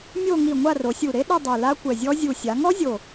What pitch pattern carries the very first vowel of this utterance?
falling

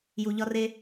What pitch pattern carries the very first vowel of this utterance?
low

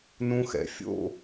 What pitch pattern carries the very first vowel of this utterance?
high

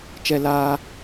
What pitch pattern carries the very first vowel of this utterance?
high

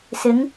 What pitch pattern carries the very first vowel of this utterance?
rising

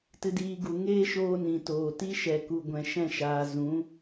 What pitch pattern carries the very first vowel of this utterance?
high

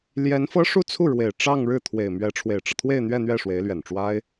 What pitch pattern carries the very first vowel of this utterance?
rising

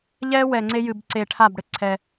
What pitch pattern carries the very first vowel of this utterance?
high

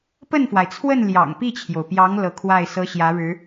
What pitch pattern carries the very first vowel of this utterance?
falling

